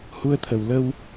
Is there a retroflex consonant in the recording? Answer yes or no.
no